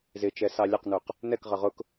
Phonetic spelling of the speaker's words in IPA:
zɪt͡ʃɛ sɑlʲɛqnuq | nɛkʁʌ ʁʊk

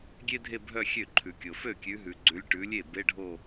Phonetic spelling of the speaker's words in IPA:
ɡʲe˥dʱe˥˧bʱœ˥˧ xʲø˥˩ǃʰʉ˨kʲo˨ fø˥˩kʲʉ˨˦ɦʉ˨ɡ͡ǀʉ˨˦lʲ ʈʉ˨˦lʲe˥˩ be˧˥˧ɖʱo˥˧

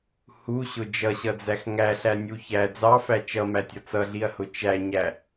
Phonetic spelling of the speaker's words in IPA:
huɕʊ d͡ʒʌɕʌd͡zæx ŋæɬænʲu çæ d͡zɑfæ t͡ʃʌmætʲʌ t͡sʌɮiɐ̯hʊ t͡ʃæɲæ

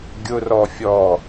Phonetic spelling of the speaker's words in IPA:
ɡʲʊrɔ fʲɔ

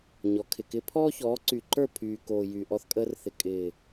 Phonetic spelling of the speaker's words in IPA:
ɲɔ˨˦kʰɪ˨kɪ˦ pʰɔː˦çɔː˨˦ǀy˨ǃə˞˦˨ pʰyː˨koː˨ jyː˨ʔɔ˧θkʼəː˧rθɪ˨ kʼɪː˨

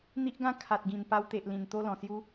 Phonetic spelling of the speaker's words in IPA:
n̪i˦ʔɡã˥˧ kʰa˨t̚ɡĩ˨˩n pa˧wt̪e˨ʔlĩ˨˩n t̪o˧lɔ̃˨˩sju˧

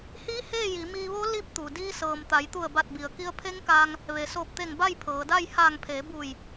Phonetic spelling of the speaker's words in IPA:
hiː˧˥ heː˥˨ji˩˧ miː˧ʋo˧˥ li˧˥p̚t̪u˩ diː˧sɤː˩m t̪a˩˧jt̪u˧˩ə̯ba˧˩t̚bi˩ə̯ ki˧ə̯pʰe˧˥ŋkaː˧ŋ | ʋe˩soː˧˩p̚t̪e˧˩ŋ ba˥˨jpʰɤː˩˧da˥˨j haː˧˩ŋpʰeː˩˧buː˧˩j

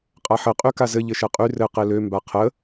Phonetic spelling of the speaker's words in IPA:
qʼaħɘ qʼykazɘ ʎɘʃɛqʼy rɘ qelø mbaqʰə

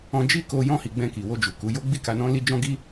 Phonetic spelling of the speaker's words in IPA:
ɔ̃˧d͡ʒi˦ko˧ jɔ̃˧hi˨ ɡ͡bɛ̃˧ki˨wo˧d͡ʒu˨ ku˨˦jo˦ ɡ͡bi˦˨ka˧nɔ̃˦ li˦d͡ʒɔ̃˦ɡi˦

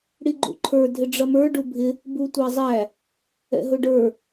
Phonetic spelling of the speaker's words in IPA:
ɽiɡ͡ǃṵǃʰə˞ dʱɪɖ͡ʐʌmə˞ ɖubʱɪ | butʷæzˤæ | ɛ̰ɦʊɖə˞

